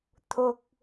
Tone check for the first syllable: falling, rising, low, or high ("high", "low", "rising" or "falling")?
high